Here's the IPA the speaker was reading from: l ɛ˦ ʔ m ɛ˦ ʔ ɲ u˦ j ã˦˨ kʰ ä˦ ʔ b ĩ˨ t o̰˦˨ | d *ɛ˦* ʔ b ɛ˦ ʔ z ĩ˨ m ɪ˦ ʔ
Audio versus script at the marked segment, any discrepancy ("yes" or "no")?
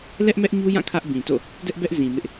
no